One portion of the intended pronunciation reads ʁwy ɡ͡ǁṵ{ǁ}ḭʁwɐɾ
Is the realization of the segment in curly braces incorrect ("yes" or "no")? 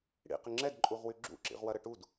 no